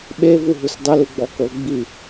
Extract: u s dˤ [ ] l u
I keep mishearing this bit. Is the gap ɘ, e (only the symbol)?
ɘ